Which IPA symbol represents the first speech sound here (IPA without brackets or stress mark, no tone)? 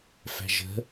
f